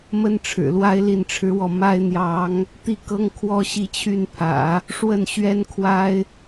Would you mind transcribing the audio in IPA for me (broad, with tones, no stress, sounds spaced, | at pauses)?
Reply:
m ə˥ n ʈ͡ʂʰ ɻ̩˨˩ l w a˥ ɪ̯ l i˥˩ n ʈ͡ʂʰ ɻ̩˥ w ɔ˥˩ m a˥ ɪ̯ n̪ j ɑ˧˥ ŋ | t̪ i˥˩ k ɤ˥ ŋ kʰ w ɔ˥ ɕ i˥˧ t͡ɕʰ y˥˩ n pʰ ä̰˨˩˦ | ʂ w ə˥˩ n ɕ ɥ ɛ˥ n kʰ w a˥ ɪ̯